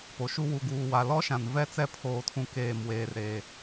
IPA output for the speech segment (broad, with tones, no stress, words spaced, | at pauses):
po˨ʃu˦ wu˨ɡuː˨wa˨ lɔ˦ʃã˨n vɛ˦t͡sɛ˦ pʰoː˨tʰũ˨keː˨m weː˨rɾe˨